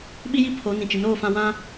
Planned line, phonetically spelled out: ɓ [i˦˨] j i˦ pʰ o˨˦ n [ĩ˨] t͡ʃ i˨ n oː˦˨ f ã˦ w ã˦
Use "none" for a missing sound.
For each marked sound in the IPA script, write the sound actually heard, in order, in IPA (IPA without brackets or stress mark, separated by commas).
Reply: i˦, ĩ˨